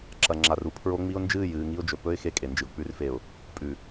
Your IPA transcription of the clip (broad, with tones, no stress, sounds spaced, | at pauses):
ǁ ɐ˨ ŋ͡ǁ a˨ r u˦ pʰ ɹ o˦ ŋ͡m i˦ ʊ̯ n d͡ʒ ɨː˦˨ j ɨː˨ ŋ i˦ ʊ̯ d͡ʒ ɵ˨ p ɵ˦ ɪ̯ x e˦ kʼ e˨ n d͡ʒ ɨ˨ ʊ̯ k͡p ʉ˨ r f e˨ ʊ̯ | pʼ ʉ˨